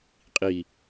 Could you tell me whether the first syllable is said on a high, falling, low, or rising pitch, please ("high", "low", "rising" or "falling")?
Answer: low